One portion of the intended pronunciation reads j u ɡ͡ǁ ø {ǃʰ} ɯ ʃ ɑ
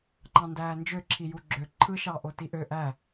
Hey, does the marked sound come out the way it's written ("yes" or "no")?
yes